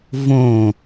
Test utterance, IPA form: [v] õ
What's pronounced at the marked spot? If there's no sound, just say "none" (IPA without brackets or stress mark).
v